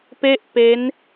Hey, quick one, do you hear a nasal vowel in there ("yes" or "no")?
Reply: no